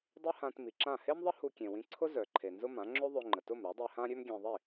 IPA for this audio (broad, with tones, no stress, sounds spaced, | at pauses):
dˤ ø˥ h ã˧ t m i˩ ǁ ã˥˩ h e˥ m ðˤ ə˥ h u˧ kʲ ẽ˩ w ĩ˧ ǀʰ ʊ˥ z œ˩ ǃʰ e˩ n z ʊ˥ m ã˩˥ ŋ͡ǁ ø˥ ðˤ ø˧ ŋ͡ǃ ə˩ t ʊ˥˩ m ɾ œ˩˥ dˤ i˧ h ã˥ ɾʲ ø˥ m ɡʲ ẽ˧ ðˤ i˥˩